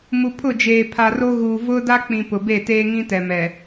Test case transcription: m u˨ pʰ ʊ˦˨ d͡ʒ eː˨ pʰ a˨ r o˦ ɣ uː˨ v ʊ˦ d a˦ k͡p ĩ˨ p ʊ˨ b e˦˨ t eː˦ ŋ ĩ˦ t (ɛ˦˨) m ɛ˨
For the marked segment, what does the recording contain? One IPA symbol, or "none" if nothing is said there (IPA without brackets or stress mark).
ɛ˨